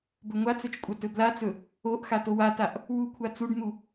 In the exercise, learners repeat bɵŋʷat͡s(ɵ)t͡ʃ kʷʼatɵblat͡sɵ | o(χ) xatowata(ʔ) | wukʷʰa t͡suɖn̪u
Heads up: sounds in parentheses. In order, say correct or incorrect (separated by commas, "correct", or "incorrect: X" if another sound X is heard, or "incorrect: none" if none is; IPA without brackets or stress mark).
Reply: correct, incorrect: ʔ, correct